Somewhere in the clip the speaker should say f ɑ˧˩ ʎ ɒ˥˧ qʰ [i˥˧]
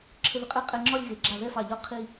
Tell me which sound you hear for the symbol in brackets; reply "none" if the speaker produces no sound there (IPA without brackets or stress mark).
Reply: i˥˧